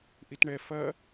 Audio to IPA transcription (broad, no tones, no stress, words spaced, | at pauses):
ʔitɳɛ fɐ